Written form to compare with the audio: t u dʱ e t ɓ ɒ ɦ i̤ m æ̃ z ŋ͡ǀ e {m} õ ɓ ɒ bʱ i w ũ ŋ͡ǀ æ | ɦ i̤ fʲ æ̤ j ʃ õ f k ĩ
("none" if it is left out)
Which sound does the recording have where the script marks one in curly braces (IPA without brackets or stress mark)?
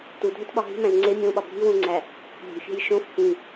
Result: mʲ